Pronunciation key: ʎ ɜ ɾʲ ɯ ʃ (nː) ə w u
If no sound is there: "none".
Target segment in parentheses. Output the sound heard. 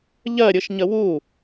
ɲ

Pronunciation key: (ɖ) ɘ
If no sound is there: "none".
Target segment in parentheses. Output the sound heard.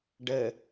ɖ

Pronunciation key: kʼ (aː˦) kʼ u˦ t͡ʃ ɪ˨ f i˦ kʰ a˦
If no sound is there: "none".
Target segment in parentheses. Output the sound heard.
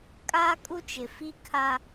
aː˦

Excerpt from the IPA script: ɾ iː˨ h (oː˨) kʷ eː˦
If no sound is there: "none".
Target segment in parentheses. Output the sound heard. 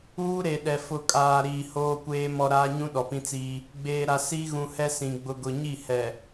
oː˦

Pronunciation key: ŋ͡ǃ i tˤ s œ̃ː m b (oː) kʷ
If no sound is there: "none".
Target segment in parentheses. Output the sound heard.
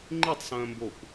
oː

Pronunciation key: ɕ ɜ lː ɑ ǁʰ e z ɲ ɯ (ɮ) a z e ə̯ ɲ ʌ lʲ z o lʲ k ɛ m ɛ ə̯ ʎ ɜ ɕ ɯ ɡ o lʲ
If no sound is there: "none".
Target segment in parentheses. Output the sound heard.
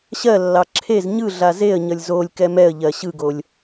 ɮ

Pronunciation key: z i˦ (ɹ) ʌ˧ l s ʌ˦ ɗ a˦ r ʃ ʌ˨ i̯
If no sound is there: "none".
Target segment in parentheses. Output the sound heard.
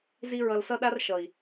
ɹ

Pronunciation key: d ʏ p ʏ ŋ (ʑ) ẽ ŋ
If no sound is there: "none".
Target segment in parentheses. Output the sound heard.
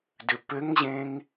ʑ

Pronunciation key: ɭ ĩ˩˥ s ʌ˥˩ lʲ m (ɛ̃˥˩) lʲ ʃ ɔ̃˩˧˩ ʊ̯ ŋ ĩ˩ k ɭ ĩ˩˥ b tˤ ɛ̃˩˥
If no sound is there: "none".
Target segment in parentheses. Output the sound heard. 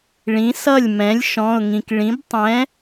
ɛ̃˩˥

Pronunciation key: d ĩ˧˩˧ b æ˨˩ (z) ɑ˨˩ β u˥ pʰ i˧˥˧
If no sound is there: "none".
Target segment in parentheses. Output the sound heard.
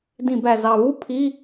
z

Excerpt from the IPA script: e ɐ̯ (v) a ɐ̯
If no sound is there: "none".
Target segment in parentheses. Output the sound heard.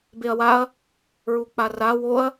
w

